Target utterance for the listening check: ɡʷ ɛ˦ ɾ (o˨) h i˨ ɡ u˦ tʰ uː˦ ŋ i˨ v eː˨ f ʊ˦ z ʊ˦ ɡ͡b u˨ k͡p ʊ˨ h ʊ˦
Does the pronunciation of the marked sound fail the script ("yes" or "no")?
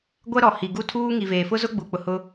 yes